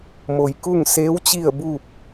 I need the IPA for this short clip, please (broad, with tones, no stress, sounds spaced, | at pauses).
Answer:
m o˩ j k u˥˨ ŋ s eː˧˥ w t͡ɕ i˥˨ ə̯ b uː˥˨ p̚